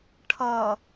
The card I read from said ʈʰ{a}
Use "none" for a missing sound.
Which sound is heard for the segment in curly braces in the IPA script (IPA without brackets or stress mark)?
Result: ʌ